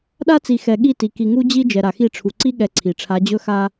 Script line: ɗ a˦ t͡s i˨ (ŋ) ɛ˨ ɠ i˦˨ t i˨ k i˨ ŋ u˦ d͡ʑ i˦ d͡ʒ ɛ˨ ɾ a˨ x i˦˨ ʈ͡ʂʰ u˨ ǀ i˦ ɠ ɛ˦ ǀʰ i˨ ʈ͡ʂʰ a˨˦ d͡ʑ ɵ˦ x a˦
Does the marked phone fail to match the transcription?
yes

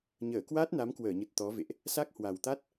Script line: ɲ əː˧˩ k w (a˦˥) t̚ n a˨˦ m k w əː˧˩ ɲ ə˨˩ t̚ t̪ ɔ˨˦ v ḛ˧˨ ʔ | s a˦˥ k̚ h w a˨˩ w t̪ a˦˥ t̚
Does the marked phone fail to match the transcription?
no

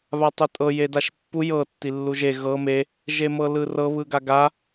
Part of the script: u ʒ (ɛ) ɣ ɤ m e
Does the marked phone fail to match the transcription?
yes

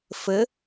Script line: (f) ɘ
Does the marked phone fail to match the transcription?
no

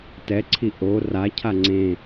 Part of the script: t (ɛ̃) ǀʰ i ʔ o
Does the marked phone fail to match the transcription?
yes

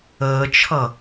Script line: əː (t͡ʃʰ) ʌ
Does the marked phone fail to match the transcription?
no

